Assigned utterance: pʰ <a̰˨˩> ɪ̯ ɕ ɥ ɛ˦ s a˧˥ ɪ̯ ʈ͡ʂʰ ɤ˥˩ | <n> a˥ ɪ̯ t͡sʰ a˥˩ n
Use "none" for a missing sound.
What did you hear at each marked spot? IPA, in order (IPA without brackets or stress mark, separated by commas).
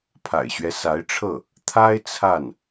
a̰˨˩, t̪ʰ